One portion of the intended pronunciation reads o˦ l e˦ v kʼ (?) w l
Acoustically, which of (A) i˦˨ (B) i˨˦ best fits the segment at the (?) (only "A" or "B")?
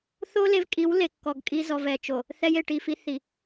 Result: B